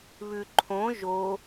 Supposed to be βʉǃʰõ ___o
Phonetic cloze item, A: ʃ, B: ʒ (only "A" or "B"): B